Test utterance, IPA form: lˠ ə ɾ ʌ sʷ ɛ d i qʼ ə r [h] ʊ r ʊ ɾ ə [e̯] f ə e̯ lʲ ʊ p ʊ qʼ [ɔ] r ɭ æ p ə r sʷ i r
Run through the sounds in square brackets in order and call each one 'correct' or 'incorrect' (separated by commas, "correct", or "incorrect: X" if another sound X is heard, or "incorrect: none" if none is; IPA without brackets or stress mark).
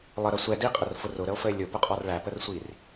incorrect: f, incorrect: o̯, correct